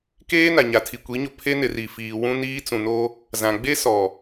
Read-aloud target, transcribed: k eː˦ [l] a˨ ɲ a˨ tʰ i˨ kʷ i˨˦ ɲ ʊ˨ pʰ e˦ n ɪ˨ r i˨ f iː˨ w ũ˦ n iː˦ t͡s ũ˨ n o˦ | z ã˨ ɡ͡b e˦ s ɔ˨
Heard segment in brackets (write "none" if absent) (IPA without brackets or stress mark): n